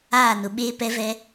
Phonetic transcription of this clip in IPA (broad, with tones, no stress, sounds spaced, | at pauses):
aː˦˨ n ʊ˨ ɓ eː˦ p ɛ˦ v ɛ˦